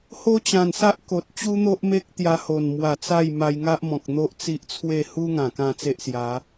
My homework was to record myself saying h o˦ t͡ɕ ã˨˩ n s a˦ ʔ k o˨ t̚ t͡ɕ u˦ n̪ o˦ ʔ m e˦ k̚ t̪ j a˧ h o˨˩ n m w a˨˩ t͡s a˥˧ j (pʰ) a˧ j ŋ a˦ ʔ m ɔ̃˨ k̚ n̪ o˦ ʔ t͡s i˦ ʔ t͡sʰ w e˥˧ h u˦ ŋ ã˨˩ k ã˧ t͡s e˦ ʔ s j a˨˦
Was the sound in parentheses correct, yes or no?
no